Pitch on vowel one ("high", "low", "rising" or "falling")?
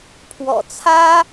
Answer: low